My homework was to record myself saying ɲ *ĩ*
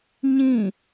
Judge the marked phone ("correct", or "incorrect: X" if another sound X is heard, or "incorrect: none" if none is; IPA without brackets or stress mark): correct